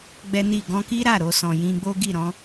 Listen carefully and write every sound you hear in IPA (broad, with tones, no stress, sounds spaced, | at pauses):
ɡ͡b ɛ˦ n i˦˨ ɡ ɔ̃˧ k i˦ ɾ a˦˨ ɾ o˧ s ɔ̃˨ j ĩ˧ ɡ͡b o˦ ɡ i˦˨ ɾ ɔ̃˨˦